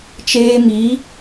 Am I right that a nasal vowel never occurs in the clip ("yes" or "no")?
yes